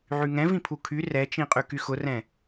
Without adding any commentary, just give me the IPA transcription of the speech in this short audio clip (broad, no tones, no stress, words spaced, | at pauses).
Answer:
ʕyŋɛ̃vĩpʰu kʰy rɛt͡ʃĩqʼy kyxʊrɛ̃